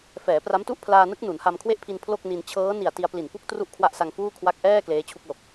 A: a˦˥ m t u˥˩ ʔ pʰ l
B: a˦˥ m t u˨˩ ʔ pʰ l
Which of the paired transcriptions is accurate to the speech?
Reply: A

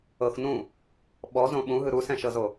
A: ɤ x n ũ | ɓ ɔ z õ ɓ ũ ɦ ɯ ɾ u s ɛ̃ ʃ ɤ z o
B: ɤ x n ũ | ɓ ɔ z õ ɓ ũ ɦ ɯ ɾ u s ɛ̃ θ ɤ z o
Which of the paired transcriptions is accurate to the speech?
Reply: A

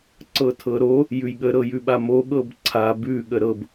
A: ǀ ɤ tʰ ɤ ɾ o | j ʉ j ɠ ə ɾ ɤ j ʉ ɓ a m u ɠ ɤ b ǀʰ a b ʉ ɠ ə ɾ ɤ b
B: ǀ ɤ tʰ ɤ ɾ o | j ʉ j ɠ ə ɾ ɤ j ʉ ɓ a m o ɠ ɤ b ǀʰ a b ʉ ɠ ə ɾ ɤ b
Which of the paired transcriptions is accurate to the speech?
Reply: B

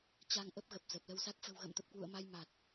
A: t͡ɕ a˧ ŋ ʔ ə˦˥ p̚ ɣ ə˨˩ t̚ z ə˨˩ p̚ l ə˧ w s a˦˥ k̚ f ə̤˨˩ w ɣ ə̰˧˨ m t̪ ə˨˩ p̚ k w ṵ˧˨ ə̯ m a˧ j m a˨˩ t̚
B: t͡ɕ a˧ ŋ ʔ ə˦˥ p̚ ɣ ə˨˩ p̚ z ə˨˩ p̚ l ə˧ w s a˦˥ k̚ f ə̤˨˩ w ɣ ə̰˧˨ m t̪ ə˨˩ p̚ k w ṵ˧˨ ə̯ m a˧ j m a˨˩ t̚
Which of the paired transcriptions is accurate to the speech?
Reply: B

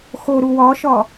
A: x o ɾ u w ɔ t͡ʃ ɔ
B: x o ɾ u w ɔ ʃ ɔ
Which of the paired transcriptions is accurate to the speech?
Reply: B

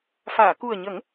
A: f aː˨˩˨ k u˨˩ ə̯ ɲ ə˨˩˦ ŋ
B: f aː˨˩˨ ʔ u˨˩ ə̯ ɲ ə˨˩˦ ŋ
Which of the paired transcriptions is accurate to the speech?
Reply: A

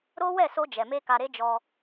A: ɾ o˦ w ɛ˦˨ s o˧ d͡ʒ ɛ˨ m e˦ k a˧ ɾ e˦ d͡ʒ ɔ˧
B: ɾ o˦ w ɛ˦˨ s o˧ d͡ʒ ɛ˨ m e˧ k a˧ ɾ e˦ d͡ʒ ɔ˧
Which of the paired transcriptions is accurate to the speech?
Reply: B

